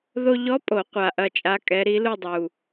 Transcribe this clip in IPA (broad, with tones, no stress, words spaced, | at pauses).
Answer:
ðo˧ʎɔ˧˥pʼo˨˩˦ qʷa˨˩ʔɐ˧t͡ʃʼa˧˥kʼɛ˧˥ ɾi˧˥lu˥˧dˤu˨˩